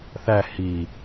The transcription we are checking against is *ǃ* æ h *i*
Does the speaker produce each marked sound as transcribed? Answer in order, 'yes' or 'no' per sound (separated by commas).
no, yes